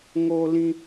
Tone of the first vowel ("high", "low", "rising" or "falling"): high